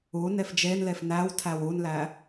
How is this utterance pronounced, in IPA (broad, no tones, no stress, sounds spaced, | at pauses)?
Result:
u n e f d͡ʒ e n l e f n æ w tʰ æ w u n l æ